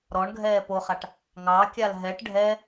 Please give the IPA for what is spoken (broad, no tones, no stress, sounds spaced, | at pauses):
ɾ ɔ ɳ ɡʱ ɛː p o χ a ʈ | ŋ ɑ kʲ a l ɦ ɛ ʈ ɖʱ ɛ